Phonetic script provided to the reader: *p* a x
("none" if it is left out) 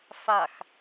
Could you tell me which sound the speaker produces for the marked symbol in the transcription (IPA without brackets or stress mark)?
f